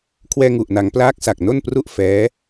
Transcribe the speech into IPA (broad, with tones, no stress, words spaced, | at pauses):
kʰwɛː˧ŋu˨˩ʔna˩˦ŋ plaː˦˥k̚sa˨˩k̚no˥˩npru˥˩ʔ fɛː˦˥